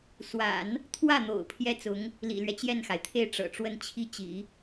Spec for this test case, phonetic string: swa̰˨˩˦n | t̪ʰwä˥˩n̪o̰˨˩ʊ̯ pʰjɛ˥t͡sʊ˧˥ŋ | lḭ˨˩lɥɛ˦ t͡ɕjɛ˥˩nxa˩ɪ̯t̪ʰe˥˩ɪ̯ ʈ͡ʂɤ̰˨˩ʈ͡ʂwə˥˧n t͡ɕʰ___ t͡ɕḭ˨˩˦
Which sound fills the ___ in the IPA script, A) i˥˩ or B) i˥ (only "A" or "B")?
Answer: A